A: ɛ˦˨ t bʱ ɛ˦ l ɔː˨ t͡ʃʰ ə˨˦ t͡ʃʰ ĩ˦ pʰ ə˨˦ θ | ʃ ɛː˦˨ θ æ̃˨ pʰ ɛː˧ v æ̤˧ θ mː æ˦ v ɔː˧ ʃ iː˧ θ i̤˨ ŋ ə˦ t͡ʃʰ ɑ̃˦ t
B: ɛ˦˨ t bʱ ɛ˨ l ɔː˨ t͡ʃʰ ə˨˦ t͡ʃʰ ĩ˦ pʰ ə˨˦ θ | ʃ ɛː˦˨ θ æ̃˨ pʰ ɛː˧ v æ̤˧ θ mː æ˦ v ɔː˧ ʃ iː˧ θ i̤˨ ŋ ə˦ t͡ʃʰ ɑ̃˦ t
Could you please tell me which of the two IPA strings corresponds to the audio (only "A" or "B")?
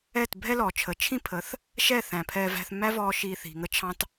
A